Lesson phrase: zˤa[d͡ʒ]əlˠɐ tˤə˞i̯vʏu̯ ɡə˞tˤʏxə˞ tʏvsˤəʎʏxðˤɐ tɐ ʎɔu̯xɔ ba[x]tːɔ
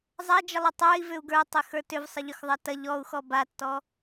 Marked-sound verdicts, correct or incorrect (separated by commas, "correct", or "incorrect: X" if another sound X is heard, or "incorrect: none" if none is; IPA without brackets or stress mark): correct, incorrect: none